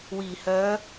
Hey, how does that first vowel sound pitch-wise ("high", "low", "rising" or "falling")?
low